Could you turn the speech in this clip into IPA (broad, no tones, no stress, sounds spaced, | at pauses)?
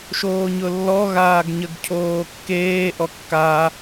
ʃ oː ɲ ʊ lː ɔ ɣ aː ɡ ɲ ə ɡ cʰ oː kː eː ʔ ɔ kː a